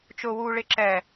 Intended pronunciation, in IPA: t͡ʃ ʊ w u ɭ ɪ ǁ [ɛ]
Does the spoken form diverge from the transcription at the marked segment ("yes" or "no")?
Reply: no